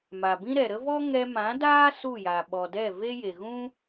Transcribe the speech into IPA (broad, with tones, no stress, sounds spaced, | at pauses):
m a˨ b ĩ˦ ɾ ɛ˨ ɾ ə˦ v ɔ˦ ŋ ɛ˧ m ã˨˦ d aː˦ s u˦˨ j a˨ ɓ ɔ˨ d ɛ˦˨ v e˦ j e˨ ɣ ũ˦